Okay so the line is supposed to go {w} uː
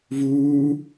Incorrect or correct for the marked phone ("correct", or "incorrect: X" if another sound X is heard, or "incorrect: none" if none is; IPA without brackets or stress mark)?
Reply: incorrect: v